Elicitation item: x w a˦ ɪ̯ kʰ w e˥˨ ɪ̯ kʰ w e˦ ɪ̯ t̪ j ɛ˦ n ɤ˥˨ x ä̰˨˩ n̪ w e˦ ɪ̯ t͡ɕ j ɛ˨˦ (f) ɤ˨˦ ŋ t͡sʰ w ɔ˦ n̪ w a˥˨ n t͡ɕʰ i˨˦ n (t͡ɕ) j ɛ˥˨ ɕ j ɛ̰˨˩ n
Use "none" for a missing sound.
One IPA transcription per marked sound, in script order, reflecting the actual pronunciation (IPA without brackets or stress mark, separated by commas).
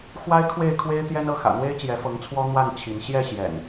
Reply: f, ɕ